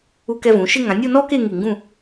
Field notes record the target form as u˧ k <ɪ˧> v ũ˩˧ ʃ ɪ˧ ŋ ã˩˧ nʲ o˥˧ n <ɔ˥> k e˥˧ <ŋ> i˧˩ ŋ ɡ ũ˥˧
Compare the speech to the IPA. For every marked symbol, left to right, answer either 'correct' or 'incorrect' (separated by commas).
incorrect, correct, correct